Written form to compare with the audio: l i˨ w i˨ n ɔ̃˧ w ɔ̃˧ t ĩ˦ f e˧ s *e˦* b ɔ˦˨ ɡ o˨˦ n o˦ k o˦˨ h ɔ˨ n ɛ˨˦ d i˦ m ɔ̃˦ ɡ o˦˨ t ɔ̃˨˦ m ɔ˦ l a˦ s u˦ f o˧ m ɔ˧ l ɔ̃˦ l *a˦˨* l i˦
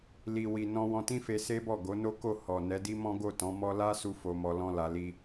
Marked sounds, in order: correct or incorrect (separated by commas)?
correct, incorrect